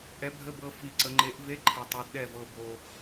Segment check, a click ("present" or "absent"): present